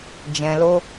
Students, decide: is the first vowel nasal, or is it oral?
nasal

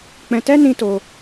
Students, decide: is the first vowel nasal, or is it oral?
nasal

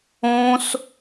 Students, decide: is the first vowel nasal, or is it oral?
nasal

